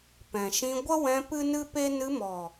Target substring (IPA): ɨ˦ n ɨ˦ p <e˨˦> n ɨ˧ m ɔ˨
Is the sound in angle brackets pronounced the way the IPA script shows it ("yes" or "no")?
no